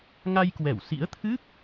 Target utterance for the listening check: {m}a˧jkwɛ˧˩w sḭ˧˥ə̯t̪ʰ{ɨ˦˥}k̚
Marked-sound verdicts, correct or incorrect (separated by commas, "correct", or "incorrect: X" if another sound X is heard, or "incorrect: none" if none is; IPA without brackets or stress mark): incorrect: ŋ, correct